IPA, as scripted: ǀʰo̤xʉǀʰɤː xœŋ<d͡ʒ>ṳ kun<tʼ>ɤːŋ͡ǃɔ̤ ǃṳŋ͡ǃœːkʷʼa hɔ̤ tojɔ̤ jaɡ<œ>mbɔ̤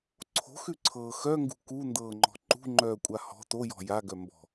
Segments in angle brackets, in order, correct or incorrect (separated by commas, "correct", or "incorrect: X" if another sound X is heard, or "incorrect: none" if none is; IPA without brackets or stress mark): incorrect: ɡ, incorrect: d, correct